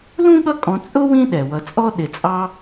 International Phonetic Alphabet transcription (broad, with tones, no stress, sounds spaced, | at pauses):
l ũ˥ ɠ ʌ˦ kʼ ɔ̃˨ t͡sʼ ʊ˥ w ĩ˦ ɗ ɛ˩ w ʌ˨ t͡sʼ ɔ˥ ɗ ɪ˨ t͡sʼ ɑ˦